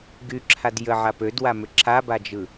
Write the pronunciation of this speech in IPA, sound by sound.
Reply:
ɡ y ǁʰ a d j ə ʕ a p ø d w a m ʏ ǁʰ a b a d͡ʒ ɯ

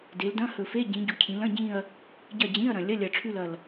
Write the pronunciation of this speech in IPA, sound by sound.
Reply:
d e˩˧ l d ɐ̃˧˥˧ h ɵ˨˩ f e˧˥˧ ɟ ĩ˩˧ ɟ u˩˧ cʰ ĩ˩˧ l ɐ̃˧˥˧ ɟ ĩ˦˨ ɐ̯ | ɟ ɐ˦˨ d͡ʑ ĩ˧˥˧ ɐ̯ ɾ ɐ̃˨˩ lʲ ɐ˧˥˧ lʲ ɐ˨˩ ʈ͡ʂʰ ʉ˦˨ l ɐ˨˩ l

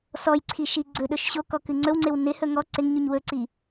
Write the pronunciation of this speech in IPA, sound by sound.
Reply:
s ɔ j ǀʰ i ʃ i ɡ͡ǀ ɵ ɗ ɵ ʃ ɕ o k ɔ k ɨ ŋ͡ǀ ɵ w ŋ͡ǀ ɪ w n ɪ h ɵ ŋ ɔ ǀ ɪ ŋ ɲ u ɲ w ɵ ǀ i

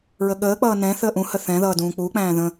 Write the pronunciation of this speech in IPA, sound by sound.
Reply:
ɹ ə ɠ əː k͡p ʌː n ɛ̃ θ əː ʔ ũ h ə θ ɛ̃ ð ʌː d ũː k͡p uː k͡p æ̃ː ð ə̃

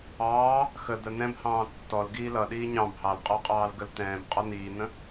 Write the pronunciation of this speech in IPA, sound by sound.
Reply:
ɑː | x ə d̪ ə n̪ ɛ̃ b h ɑ̃ː tː ɔ l ɡ iː l ʌ ɗ iː ɲ ɑ̃ b h ɑ l qʼ ɔ qʼ ɑː l ɡ ə l t̪ ɛ̃ː b qʼ ɔ n̪ iː n̪ ə̃

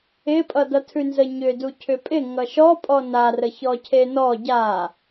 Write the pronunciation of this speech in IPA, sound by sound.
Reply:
ɪ pʼ ʌ d ʌ tʰ ʉ n z ə ɲ ʏ d u cʰ ʏ pʼ ɪ ŋ ʌ ʃ ɔ pʼ ɔ n a r ə ç ɔ cʰ e n ɔ ɟ a

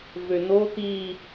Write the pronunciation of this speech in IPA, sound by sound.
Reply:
v ø n o t̪ i

